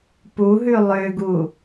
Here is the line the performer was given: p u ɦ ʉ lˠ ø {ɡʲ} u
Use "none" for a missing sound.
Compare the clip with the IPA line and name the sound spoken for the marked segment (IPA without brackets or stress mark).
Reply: ɡ